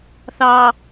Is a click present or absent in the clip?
absent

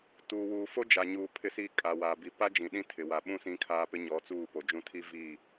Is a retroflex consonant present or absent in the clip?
absent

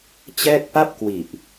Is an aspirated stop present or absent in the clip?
absent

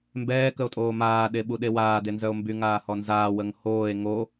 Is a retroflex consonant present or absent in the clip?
absent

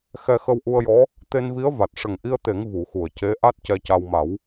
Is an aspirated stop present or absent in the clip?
absent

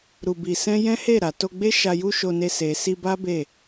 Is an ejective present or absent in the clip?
absent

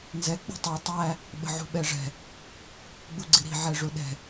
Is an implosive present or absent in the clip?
present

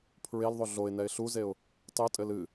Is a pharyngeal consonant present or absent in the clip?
absent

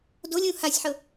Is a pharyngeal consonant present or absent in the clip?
present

